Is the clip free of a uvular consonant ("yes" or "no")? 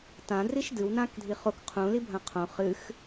no